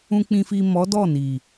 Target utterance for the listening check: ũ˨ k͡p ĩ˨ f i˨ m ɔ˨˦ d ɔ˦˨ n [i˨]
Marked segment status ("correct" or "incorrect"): correct